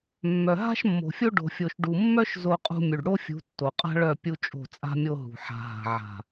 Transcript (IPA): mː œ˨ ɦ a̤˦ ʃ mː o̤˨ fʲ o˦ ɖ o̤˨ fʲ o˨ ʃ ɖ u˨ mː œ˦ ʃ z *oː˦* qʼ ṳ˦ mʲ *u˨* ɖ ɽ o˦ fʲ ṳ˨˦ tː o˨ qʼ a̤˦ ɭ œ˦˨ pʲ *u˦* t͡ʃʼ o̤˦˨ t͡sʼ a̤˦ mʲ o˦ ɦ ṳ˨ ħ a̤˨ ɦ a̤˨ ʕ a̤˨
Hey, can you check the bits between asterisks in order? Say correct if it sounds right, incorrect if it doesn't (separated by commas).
incorrect, correct, correct